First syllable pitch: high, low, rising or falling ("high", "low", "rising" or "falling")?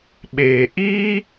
low